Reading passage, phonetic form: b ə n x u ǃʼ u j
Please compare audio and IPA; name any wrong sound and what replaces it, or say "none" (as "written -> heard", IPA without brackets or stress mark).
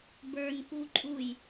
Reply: ə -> ə˞